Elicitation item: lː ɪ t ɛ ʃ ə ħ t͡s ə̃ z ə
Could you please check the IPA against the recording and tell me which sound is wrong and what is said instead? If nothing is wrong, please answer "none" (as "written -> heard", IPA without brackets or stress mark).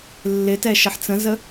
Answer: none